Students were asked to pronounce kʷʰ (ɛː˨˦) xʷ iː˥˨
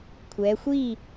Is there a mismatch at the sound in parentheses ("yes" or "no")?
no